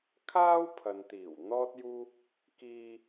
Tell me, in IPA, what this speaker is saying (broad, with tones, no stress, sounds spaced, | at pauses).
kʰ aː˥ w pʰ ɐ˨ n t̪ iː˨˩ w n̪ ɔː˥ t̚ j uː˥ | k iː˧